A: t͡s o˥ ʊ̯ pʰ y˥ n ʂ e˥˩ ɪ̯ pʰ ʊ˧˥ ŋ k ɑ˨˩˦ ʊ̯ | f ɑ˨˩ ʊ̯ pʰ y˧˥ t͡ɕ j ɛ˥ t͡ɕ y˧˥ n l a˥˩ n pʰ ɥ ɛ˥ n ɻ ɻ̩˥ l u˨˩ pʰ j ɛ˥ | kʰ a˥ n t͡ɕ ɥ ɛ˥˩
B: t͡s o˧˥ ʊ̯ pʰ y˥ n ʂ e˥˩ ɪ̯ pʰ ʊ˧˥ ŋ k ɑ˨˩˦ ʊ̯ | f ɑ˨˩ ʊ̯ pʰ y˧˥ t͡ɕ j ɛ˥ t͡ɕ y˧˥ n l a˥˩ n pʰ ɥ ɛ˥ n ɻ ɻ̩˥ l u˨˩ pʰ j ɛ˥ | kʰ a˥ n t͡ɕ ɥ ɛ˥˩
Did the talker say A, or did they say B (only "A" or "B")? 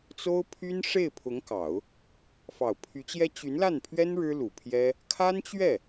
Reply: A